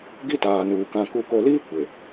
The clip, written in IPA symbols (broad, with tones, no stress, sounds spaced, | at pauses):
ɡ i˦ t aː˨ n uː˨ k ã˨ k u˨ k o˨ l iː˦ kʷ e˨